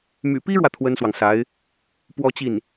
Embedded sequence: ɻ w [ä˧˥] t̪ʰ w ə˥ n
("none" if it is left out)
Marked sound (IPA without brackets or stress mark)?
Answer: ä˨